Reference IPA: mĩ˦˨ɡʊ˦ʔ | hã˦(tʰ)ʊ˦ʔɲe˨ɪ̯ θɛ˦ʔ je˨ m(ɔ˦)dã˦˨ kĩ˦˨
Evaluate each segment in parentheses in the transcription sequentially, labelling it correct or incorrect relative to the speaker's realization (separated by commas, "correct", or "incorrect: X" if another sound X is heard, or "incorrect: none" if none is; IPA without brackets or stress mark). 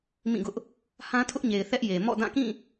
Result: correct, incorrect: ɔ̰˦˨